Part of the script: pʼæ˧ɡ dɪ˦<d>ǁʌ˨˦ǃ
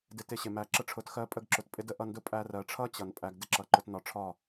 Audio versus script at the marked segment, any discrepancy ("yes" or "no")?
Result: yes